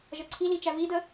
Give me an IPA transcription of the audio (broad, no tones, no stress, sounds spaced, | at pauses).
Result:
ʒ ʌ ǀʰ i l i t͡ʃ æ v i d ə